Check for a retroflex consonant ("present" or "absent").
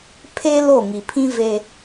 absent